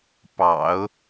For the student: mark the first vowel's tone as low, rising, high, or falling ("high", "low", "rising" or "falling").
low